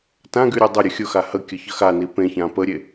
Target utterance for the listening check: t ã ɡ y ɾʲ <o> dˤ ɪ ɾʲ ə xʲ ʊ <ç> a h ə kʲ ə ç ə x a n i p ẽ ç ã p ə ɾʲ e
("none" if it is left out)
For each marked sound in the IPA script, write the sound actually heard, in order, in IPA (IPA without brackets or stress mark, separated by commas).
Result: o, x